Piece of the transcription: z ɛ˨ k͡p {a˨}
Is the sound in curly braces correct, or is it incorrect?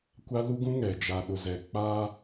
incorrect